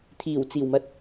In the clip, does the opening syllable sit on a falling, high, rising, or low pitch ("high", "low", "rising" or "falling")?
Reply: low